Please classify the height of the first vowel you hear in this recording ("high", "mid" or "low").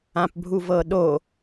low